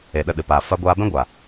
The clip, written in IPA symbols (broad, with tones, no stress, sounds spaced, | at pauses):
e˨ ɗ ə˦˨ ɗ ɨ˨ p aː˨ f a˧ ɡʷ aː˧ b ɛ̃˦ ɡʷ a˨